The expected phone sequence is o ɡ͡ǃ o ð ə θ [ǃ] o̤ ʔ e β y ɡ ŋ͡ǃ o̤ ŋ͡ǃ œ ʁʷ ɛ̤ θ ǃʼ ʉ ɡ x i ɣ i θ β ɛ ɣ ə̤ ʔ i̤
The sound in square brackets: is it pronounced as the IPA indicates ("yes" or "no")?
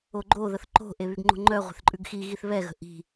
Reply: yes